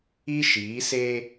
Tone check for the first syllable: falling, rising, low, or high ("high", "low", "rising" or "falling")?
high